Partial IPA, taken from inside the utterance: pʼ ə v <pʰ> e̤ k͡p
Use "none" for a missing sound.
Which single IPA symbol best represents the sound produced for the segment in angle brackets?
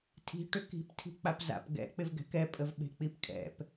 ɓ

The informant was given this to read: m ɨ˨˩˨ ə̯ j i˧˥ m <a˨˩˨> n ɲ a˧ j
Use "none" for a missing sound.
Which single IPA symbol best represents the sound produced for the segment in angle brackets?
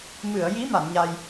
a˨˩˨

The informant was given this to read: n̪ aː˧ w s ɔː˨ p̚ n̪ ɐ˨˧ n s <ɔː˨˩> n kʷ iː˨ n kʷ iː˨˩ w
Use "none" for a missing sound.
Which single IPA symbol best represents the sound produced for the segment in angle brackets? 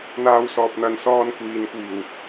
ɔː˧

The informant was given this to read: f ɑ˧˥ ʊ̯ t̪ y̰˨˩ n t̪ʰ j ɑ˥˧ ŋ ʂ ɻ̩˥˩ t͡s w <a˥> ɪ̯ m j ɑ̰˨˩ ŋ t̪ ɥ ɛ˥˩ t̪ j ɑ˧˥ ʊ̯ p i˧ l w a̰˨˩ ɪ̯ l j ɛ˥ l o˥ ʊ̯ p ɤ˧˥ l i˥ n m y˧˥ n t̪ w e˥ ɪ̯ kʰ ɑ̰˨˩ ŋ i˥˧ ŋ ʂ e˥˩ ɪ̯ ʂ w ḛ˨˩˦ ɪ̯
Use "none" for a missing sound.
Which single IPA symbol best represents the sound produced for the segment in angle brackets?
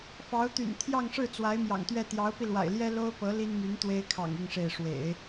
a˧˥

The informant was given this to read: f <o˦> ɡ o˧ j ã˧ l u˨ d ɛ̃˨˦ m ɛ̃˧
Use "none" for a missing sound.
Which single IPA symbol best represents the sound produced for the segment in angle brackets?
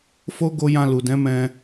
o˦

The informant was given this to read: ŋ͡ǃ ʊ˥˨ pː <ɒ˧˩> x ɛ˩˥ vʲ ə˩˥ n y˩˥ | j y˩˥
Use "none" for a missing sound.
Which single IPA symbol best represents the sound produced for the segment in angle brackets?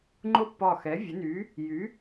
ɒ˧˩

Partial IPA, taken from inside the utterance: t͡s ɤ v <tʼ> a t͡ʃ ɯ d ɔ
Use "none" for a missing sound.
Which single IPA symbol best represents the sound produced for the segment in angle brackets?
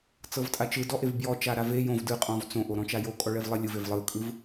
tʼ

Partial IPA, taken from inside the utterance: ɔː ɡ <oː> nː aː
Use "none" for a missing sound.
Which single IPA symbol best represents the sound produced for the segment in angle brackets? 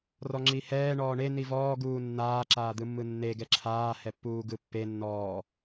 uː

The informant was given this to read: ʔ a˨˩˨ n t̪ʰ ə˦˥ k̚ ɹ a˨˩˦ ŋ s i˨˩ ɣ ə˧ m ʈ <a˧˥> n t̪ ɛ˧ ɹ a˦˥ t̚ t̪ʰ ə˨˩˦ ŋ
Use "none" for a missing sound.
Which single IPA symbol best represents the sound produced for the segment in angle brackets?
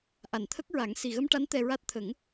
a˧˥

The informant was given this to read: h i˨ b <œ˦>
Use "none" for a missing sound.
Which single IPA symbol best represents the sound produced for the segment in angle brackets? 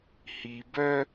œ˦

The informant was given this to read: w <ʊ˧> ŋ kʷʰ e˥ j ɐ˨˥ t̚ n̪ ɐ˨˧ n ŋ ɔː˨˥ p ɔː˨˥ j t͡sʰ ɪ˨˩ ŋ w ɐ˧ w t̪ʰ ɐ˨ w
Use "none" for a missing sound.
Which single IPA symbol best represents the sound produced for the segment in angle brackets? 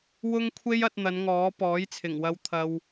ʊ˥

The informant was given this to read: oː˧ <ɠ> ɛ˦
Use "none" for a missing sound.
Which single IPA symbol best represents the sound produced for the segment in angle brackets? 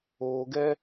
ɡ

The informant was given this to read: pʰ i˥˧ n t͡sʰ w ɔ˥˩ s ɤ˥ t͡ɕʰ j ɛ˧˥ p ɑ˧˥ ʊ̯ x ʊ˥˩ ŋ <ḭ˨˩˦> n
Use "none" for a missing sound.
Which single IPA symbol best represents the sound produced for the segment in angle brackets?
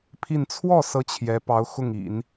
ḭ˨˩˦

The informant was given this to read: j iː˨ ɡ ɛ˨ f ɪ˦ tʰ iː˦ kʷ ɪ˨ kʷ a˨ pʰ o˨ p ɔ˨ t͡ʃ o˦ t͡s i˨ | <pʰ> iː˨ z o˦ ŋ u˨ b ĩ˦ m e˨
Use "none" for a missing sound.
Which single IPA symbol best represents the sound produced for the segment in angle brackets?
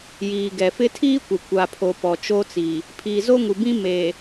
pʰ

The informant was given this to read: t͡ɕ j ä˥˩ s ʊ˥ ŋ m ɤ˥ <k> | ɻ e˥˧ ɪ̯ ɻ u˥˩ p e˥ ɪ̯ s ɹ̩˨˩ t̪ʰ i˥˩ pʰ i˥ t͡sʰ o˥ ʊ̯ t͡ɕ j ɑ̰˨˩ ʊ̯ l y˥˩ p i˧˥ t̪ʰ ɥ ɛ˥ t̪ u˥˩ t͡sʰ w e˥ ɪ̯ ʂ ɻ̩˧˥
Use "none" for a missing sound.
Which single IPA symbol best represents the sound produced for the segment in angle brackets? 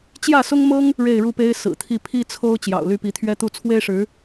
ŋ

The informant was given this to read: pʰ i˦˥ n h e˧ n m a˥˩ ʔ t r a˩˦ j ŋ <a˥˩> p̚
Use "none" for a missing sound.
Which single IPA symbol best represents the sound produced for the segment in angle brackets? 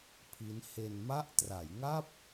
a˥˩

